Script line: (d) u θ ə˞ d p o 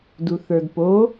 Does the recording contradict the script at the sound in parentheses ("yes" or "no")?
no